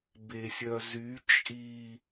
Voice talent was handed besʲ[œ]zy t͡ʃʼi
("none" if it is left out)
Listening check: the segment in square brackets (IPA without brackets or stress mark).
œ